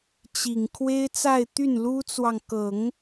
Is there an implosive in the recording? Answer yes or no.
no